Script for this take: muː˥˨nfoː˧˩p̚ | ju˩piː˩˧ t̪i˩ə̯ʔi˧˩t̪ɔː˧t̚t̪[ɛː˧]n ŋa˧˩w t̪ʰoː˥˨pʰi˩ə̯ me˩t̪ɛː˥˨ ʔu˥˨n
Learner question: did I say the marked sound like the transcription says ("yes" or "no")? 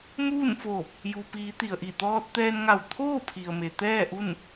yes